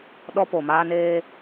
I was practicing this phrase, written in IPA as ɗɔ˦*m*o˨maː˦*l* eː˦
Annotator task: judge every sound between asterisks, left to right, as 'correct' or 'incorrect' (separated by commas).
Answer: incorrect, incorrect